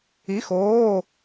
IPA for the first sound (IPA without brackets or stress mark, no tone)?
i